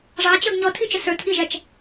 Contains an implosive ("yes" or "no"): yes